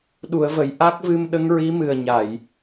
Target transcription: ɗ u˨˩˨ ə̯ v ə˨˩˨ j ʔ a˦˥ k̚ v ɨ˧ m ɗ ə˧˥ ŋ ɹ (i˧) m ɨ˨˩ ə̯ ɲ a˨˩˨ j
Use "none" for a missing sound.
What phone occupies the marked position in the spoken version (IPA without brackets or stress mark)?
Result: i˧˥